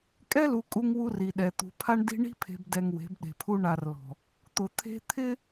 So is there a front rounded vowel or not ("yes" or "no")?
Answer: no